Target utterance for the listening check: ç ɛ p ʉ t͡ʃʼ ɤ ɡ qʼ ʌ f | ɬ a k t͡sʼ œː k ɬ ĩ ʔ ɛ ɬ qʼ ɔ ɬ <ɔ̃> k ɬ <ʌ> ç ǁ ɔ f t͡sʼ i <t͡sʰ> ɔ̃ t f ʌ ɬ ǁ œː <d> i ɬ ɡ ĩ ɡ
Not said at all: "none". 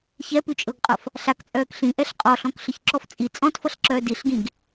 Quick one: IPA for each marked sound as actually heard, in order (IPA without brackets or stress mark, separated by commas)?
ɔ̃, ə, t͡sʼ, d